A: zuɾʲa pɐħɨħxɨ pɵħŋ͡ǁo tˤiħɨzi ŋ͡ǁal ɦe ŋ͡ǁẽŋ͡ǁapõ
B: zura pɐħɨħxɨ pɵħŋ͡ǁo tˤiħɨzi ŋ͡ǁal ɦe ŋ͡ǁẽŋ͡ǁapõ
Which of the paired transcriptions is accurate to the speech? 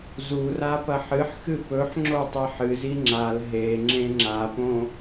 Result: B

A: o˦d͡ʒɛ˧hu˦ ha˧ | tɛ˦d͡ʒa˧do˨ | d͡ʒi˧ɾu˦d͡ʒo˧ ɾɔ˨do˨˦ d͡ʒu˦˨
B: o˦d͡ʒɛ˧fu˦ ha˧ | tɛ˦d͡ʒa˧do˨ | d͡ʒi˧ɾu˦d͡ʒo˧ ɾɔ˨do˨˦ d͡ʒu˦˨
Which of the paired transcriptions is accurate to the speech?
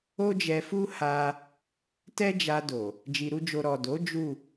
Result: B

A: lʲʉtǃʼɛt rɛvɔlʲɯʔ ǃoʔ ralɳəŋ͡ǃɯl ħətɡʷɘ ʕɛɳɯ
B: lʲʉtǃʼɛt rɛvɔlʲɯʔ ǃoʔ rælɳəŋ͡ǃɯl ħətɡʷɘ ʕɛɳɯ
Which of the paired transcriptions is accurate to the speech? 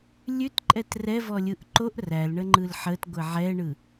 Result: B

